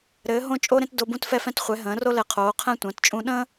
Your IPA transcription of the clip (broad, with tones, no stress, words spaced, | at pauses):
ɾɘː˨˦ ɦõ˦t͡ʃʼo˦ɾẽ˦t do˦bũ˦tfɛ˦fɛ̃˦t χʷɛ˨˦ɦə̃ː˨˦ro˦lɛ˨˦ qʰoː˨˦qʰɛ̃˦tʷə̃ː˨˦tt͡ʃʼũ˦ ɗə̃˦